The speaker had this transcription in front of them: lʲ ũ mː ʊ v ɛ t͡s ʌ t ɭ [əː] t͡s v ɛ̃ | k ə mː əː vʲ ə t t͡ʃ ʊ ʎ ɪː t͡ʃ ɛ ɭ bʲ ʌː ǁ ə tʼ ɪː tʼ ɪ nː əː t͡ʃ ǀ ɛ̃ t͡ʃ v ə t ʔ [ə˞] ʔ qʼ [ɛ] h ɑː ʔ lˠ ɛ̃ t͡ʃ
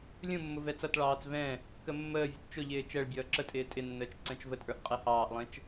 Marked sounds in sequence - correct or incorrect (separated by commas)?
incorrect, correct, correct